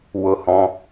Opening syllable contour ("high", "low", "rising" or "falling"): low